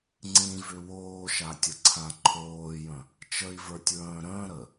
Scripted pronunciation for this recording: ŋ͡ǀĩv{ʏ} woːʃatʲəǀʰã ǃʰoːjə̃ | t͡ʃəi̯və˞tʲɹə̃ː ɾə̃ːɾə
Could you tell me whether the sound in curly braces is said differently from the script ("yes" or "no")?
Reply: no